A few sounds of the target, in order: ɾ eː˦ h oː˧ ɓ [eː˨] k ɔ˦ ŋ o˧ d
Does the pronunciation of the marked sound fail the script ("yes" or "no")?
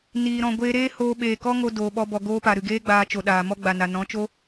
no